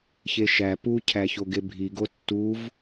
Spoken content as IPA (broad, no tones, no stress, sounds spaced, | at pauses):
ç e ʃ æ p u cʰ æ ç o ɡ e bʱ i ɡ o tː u v